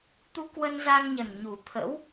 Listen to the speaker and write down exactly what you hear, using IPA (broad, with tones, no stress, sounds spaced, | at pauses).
t̪ u˧ k w ə˧ n z a˧ ŋ ɲ ə˨˩ n ɲ u˨˩ t̪ʰ ə̰˧˥ w